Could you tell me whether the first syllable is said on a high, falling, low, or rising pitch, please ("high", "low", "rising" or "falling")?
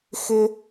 high